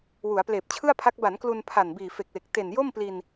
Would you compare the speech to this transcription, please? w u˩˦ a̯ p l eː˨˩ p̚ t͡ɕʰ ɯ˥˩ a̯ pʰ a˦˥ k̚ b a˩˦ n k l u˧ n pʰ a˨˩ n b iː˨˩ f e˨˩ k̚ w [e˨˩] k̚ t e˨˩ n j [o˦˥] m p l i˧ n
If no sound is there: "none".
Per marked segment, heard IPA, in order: e˨˩, o˥˩

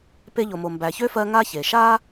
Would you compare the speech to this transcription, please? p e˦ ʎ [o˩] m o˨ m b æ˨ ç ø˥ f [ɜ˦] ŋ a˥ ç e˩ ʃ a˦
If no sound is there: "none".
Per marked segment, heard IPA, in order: o˨, ɜ˦

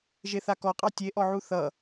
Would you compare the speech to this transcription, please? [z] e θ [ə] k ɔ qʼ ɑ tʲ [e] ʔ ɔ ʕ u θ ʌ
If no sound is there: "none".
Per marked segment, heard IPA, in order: ʒ, a, e

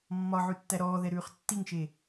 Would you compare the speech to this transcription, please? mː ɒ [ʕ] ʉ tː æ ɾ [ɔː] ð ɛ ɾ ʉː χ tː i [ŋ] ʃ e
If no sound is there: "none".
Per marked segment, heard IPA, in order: ʕ, ɔː, ŋ

